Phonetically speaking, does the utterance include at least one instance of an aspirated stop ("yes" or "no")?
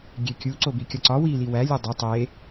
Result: no